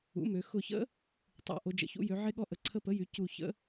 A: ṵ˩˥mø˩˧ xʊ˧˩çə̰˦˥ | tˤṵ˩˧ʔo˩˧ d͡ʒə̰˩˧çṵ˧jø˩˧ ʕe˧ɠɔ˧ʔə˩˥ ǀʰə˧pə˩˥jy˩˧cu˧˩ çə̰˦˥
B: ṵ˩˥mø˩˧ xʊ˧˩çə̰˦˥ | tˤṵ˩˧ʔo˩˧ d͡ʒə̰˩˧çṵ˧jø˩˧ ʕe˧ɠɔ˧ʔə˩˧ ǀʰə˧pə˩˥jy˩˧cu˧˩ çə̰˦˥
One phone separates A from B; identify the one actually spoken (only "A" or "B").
B